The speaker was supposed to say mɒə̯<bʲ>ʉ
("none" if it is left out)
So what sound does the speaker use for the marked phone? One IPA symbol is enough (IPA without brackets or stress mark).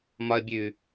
bʲ